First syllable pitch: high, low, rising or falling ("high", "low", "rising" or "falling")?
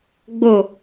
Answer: falling